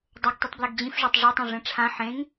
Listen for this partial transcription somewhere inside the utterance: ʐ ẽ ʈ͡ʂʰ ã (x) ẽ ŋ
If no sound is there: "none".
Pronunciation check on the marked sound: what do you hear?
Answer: ħ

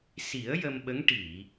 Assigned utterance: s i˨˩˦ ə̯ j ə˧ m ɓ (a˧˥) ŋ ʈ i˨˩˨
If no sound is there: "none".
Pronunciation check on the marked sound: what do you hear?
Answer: ə˧˥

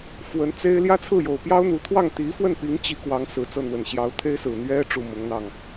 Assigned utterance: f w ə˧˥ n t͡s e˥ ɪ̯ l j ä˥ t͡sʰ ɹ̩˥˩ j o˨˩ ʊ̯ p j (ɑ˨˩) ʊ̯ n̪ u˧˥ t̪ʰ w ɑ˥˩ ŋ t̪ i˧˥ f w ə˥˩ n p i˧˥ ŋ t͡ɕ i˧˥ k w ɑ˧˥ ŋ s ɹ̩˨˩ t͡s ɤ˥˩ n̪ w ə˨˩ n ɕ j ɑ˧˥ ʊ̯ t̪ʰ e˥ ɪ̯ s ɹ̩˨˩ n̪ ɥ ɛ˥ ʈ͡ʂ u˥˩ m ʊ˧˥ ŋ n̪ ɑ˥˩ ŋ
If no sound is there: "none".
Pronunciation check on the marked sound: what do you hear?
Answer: ɑ˥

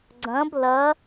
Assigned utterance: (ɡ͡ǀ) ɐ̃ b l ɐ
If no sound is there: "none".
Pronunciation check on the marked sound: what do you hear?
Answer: ɡ͡ǀ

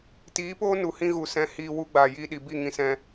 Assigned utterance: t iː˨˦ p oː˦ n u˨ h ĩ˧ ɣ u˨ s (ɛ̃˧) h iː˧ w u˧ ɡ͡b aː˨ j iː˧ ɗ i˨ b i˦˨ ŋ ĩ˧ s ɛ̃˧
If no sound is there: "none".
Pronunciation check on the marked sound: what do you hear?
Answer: ɛ̃˧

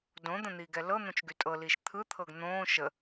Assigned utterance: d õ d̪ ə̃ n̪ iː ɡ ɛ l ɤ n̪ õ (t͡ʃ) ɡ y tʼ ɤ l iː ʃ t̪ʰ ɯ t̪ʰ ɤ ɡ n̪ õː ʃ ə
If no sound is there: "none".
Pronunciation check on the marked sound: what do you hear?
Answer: t͡ʃ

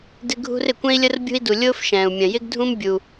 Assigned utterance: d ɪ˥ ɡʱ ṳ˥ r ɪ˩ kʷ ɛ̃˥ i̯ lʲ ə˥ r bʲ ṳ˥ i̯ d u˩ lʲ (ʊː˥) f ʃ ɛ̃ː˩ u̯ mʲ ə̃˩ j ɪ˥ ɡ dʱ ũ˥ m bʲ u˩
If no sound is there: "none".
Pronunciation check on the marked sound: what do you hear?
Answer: ʊː˥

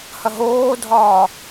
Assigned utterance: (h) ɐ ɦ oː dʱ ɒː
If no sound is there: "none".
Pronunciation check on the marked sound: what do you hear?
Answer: h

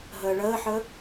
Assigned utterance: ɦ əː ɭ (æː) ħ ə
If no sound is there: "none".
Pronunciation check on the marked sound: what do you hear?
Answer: əː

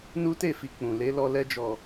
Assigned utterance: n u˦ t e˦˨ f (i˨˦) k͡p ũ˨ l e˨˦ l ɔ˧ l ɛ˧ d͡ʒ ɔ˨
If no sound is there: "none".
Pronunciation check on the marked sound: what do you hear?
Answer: i˨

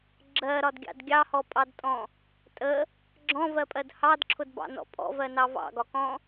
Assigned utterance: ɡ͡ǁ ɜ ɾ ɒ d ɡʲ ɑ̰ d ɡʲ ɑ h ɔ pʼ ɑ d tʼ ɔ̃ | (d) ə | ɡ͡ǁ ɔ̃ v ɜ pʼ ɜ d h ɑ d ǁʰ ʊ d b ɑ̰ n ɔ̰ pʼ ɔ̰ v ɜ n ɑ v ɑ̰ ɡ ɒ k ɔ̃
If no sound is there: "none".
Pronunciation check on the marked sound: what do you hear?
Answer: tʼ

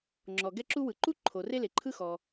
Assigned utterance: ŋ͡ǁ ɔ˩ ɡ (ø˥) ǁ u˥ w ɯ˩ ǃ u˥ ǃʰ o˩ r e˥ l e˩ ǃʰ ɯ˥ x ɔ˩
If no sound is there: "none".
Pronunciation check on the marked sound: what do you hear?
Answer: ɛ˥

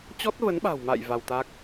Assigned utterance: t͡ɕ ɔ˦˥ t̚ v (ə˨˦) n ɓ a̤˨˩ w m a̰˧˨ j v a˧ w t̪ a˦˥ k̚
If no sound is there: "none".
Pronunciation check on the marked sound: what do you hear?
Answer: ə˨˦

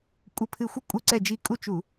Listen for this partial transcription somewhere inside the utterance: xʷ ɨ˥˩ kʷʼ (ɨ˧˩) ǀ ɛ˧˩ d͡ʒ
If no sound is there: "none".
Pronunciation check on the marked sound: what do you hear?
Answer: ɨ˧˩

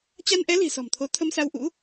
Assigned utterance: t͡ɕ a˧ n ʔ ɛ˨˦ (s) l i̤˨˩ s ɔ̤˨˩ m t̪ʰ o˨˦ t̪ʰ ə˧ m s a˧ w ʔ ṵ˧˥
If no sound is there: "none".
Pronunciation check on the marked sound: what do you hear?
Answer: none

